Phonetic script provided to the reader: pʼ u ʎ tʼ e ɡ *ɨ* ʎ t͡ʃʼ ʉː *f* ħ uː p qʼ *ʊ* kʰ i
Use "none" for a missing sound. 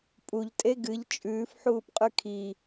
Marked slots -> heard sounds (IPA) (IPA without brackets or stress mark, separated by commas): ɨ, f, ʉ